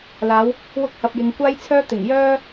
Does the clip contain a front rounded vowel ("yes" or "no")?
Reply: yes